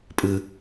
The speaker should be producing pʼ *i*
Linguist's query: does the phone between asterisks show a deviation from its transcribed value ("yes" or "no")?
yes